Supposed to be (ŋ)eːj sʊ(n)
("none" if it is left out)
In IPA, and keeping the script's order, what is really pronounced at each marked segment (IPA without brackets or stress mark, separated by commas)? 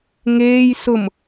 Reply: ŋ, m